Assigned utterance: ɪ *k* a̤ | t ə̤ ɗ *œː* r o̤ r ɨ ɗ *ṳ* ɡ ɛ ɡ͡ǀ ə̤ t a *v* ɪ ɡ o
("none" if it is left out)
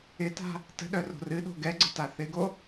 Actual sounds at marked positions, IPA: t, œ, o̤, θ

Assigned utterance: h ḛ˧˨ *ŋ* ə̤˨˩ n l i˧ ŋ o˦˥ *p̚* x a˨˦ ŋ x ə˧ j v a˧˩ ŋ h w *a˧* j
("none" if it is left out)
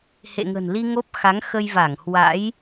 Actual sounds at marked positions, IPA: ŋ, p̚, a̰˧˥

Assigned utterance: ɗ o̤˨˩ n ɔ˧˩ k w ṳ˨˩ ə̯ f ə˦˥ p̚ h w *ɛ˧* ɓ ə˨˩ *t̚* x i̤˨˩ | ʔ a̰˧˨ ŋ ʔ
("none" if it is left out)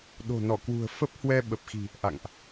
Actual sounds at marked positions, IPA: ɛ˧, p̚

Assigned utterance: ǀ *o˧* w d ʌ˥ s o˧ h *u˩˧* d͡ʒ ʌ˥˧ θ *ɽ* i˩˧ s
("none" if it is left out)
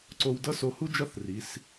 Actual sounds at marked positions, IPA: o˧, u˥, r

